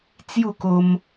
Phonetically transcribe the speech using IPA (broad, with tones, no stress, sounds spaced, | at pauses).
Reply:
t͡s j u˥˧ k o˧ m